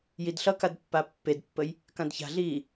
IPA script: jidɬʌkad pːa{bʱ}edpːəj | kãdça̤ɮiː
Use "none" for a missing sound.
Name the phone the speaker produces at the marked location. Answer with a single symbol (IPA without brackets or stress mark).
pː